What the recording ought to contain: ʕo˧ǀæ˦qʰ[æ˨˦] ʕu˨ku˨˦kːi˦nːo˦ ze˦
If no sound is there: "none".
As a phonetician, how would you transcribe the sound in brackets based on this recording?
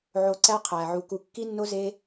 æ˨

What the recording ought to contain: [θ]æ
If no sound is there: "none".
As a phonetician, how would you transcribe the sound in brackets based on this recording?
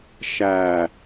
ʃ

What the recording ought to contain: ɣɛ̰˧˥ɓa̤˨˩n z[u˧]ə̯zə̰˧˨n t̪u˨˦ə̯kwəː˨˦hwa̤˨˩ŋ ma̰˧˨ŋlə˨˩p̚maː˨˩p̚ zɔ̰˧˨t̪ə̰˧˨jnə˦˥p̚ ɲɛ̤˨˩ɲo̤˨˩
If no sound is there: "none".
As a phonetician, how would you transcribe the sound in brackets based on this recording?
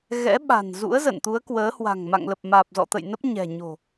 ṵ˧˥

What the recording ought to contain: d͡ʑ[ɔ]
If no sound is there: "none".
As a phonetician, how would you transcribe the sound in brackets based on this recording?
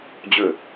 ɵ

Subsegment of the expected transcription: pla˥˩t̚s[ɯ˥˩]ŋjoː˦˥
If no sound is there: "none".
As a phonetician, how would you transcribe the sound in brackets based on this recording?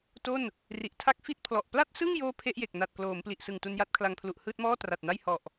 ɯ˥˩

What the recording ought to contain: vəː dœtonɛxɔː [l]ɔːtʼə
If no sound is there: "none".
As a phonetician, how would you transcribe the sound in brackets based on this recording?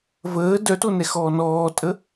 n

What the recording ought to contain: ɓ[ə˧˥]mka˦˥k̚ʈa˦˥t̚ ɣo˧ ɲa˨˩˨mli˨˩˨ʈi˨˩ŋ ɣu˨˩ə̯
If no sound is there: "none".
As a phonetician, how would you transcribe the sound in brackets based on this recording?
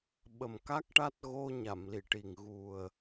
ə˨˩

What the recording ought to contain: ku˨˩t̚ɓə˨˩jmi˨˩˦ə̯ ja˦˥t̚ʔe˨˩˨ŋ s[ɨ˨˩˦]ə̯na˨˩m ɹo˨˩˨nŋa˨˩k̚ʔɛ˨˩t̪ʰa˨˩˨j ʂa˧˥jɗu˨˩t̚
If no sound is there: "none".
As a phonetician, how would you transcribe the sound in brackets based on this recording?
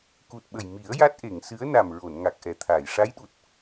ɨ˧˥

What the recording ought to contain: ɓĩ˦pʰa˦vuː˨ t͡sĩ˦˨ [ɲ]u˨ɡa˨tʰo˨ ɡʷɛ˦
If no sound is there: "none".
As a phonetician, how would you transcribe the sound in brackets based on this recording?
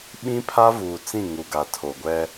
ŋ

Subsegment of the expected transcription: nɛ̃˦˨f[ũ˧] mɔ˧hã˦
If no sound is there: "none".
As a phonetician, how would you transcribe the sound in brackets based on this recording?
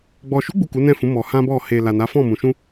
ũ˨˦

